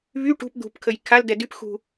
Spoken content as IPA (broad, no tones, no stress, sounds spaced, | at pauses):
β y ʈ ṳ p d̪ ṳ p kʰ ə j kʰ a l d ɛ d y p x ṳ